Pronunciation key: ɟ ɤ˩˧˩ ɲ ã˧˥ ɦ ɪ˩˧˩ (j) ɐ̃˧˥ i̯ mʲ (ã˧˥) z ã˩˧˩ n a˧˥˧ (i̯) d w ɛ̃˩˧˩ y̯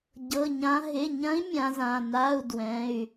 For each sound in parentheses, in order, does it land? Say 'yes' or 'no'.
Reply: no, yes, no

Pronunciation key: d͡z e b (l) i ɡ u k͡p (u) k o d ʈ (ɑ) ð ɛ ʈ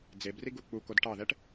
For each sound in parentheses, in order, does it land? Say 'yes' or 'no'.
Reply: no, yes, yes

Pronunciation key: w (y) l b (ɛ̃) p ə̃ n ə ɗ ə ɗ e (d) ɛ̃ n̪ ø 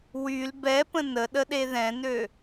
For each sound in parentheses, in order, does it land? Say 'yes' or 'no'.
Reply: yes, no, no

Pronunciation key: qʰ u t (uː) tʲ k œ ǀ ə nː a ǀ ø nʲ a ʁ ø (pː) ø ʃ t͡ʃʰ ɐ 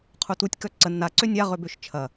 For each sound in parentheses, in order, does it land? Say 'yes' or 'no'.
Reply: no, no

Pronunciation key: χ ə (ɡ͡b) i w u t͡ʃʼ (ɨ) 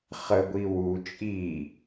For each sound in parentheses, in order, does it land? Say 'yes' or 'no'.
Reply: no, no

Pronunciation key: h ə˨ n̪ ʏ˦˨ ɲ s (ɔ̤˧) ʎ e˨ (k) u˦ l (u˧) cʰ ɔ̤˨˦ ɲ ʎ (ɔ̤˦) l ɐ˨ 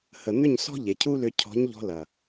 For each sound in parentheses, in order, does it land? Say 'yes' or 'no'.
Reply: no, no, no, no

